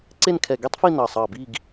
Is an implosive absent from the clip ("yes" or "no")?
yes